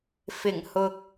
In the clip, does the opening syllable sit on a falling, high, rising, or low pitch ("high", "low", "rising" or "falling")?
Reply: low